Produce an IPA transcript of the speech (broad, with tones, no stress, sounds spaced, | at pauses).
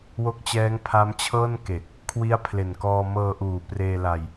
w o˦˥ k̚ t͡ɕ ɛː˦˥ ŋ pʰ a˦˥ m t͡ɕʰ ɤː˥˩ n k e˨˩ k̚ | kʰ w i˦˥ a̯ pʰ l e˨˩ n k ɔː˧ m ɤː˧ ʔ uː˨˩ p r eː˧ l a˧ j